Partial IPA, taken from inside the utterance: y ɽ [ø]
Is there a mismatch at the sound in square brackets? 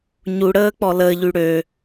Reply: no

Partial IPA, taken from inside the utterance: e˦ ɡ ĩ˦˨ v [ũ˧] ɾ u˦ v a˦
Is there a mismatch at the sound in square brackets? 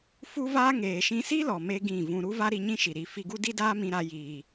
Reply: yes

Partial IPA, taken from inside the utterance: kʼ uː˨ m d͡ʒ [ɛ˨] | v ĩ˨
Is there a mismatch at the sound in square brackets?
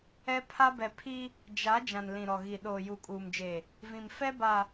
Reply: yes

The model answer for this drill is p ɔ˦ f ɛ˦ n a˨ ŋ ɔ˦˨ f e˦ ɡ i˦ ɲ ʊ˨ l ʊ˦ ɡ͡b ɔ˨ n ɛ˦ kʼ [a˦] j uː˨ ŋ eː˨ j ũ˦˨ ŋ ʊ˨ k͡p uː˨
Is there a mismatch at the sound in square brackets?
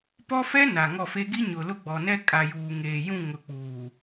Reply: yes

